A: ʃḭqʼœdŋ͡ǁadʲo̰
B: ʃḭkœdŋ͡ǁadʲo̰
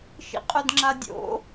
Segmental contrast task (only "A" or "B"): A